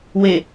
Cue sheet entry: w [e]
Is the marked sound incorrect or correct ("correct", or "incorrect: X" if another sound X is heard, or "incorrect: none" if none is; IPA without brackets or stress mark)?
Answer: correct